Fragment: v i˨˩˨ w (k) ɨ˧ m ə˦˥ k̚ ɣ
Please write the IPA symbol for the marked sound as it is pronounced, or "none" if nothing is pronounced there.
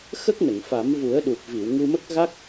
ŋ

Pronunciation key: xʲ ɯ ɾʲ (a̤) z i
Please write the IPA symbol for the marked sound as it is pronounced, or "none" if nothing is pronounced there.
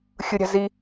a̤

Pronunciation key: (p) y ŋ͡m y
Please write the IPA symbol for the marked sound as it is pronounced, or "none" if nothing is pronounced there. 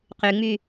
q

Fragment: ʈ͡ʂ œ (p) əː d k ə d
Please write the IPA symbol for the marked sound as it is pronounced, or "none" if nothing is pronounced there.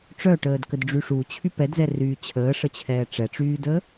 ʈ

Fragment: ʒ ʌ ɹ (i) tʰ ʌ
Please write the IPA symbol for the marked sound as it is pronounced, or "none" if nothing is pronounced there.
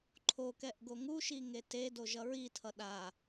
i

